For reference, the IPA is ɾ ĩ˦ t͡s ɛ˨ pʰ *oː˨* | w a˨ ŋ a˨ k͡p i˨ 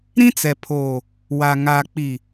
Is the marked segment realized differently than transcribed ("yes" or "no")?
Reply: no